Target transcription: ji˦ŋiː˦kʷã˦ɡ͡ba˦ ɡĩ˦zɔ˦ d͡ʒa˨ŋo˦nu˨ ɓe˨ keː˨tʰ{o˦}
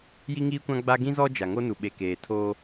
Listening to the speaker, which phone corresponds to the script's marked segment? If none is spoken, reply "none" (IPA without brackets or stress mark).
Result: oː˦